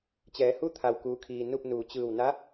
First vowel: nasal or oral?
oral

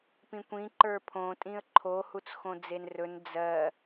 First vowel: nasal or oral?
nasal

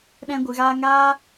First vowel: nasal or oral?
nasal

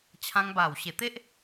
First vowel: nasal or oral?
nasal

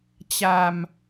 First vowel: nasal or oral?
oral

